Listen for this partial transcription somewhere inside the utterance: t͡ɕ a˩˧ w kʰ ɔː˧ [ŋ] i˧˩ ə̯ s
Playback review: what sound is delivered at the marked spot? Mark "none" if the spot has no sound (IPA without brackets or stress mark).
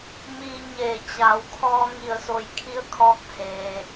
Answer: ŋ